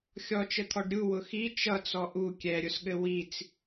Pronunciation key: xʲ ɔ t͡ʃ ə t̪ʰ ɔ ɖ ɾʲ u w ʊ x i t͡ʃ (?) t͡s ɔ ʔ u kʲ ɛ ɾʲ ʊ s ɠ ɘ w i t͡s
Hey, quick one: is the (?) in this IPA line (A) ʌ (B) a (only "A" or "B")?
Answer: A